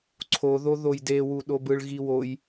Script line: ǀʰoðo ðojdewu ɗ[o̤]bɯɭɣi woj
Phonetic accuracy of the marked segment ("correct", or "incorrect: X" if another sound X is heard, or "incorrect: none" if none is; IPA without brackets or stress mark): incorrect: o